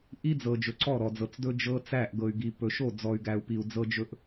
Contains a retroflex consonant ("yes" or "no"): no